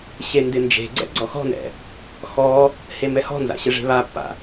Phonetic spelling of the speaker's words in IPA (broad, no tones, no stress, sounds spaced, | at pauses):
ɕ e n d ɪ n d͡ʒ e̤ ɡ͡ǀ ɛ̰ ɡ͡ǀ ɔ x ɔ̤ n ɛ̰ | x ɔ | h e m ɛ h ɔ̤ n z a̰ ɕ ɪ ʐ e̤ β a pː a̰